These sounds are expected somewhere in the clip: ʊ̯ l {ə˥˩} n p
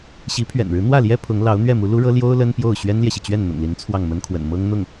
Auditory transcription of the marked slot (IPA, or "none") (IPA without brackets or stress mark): ə˥